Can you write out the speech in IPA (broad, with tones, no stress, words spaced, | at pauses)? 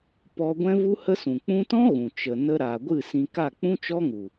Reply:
pɔ˧ɡʷɛ̃˦ vu˦hə˦sũ˨ k͡pũ˦ tɔ̃˦ ɣũ˨ t͡ʃə˨ nə˧ɾa˨ɡʷɨ˦˨ sĩ˧ ka˦˨k͡pũ˦t͡ʃɔ˦ŋu˨